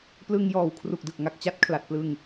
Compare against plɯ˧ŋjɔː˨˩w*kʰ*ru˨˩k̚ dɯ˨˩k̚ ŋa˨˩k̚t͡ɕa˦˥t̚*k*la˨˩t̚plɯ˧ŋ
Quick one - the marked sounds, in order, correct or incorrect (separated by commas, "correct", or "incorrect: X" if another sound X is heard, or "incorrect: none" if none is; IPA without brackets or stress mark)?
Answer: correct, incorrect: kʰ